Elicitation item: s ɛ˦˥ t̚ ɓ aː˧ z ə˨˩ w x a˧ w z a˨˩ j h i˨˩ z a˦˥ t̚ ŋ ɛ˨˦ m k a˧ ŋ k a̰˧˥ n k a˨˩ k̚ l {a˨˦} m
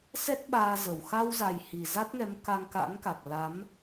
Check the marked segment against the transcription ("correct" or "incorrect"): correct